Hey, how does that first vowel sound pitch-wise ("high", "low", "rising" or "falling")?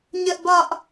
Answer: high